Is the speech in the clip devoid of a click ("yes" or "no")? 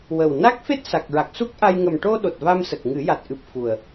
yes